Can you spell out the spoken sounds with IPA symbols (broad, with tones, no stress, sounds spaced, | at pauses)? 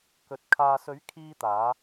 k ɵ˨ t̚ kʰ aː˨ s ɵ˨˥ ɥ kʰ iː˥ t̪ aː˨˥